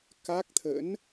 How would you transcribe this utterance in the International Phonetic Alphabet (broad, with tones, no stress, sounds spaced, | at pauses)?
k a˦˥ k̚ t̪ʰ ə̰˧˥ n